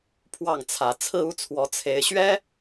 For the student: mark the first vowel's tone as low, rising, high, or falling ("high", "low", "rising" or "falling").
falling